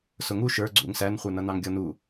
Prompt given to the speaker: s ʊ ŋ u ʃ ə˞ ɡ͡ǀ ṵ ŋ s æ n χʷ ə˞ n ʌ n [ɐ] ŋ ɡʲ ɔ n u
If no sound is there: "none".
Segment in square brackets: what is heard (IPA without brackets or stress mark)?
ɑ